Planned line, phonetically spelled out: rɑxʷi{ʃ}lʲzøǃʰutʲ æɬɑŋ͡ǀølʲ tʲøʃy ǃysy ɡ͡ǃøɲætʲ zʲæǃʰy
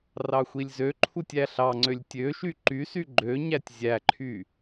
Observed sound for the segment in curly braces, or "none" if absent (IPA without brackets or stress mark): none